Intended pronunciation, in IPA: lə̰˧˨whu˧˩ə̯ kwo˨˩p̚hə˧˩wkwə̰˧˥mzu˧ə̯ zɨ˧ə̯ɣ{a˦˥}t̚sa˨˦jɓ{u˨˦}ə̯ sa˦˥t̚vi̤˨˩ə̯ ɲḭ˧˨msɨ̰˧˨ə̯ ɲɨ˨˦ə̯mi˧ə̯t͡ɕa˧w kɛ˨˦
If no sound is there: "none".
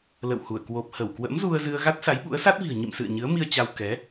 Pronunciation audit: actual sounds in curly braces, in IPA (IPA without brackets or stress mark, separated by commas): a˦˥, ṵ˧˥